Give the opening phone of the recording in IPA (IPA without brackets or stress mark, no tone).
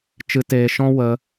t͡ʃ